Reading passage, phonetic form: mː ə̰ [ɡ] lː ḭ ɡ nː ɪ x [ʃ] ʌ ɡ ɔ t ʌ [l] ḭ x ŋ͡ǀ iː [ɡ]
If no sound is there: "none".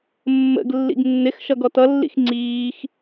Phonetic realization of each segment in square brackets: ɡ, ʃ, lː, x

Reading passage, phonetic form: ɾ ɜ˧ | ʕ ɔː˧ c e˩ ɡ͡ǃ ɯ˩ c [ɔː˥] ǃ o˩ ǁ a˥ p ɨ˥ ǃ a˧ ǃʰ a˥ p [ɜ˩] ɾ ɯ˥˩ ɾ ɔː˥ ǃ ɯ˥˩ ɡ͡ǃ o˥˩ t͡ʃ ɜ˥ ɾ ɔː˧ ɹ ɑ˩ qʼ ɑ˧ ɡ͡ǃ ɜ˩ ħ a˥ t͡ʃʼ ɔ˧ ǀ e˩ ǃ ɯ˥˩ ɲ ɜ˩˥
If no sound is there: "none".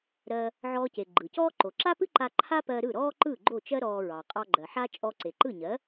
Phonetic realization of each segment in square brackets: ɔː˥, ɜ˧

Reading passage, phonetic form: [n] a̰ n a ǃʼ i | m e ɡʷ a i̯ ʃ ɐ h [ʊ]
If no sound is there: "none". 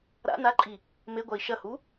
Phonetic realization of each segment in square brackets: ɾ, u

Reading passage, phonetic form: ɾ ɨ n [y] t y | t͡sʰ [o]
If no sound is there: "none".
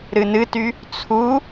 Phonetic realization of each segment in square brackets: ɨ, u

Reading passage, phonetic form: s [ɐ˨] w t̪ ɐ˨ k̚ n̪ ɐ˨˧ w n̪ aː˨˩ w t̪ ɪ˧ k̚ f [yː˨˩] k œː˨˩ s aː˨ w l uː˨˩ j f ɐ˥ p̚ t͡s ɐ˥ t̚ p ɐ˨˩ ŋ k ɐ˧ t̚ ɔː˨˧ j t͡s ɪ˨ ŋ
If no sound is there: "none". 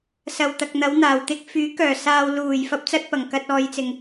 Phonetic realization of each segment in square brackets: ɐ˨, yː˨˥

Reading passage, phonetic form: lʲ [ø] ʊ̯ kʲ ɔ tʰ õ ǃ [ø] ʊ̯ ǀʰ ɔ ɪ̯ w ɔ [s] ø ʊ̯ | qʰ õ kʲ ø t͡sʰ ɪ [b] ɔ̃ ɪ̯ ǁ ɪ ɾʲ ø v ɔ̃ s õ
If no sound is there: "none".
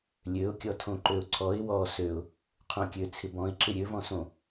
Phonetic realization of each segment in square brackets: ø, ø, s, b

